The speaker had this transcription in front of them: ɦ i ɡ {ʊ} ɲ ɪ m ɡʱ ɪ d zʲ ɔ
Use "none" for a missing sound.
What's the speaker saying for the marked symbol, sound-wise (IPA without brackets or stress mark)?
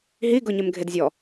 ʊ